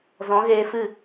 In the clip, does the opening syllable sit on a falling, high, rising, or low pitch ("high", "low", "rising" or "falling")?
rising